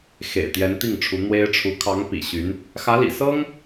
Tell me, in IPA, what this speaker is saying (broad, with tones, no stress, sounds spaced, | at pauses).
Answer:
x ḛ˨˩ ɪ̯ t̪ j ɛ˧˥ n t̪ i˥˩ ŋ ʈ͡ʂʰ u˧˥ n̪ w e˥ ɪ̯ ʈ͡ʂʰ u˧˥ kʰ ɑ˧˥ ŋ p ḭ˨˩ ɕ y˧˥ n | x ä˧˥ l ḭ˨˩ s ɤ˥ ŋ